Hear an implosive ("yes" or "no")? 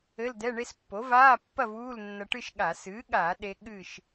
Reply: yes